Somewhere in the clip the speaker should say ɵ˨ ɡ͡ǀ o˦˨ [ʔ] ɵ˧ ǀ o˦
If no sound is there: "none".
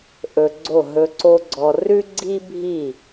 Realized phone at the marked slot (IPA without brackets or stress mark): ɦ